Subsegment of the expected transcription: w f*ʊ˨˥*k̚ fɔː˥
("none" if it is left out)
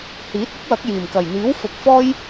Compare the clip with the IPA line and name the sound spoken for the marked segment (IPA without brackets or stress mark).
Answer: ʊ˨